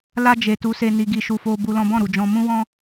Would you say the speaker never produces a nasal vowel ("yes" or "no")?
no